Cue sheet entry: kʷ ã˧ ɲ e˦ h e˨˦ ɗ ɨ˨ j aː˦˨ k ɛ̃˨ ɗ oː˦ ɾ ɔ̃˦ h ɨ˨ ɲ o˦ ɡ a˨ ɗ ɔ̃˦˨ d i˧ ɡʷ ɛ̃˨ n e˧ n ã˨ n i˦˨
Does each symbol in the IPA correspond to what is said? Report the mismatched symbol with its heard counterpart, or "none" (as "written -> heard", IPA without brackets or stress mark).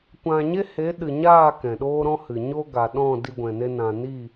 j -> ɲ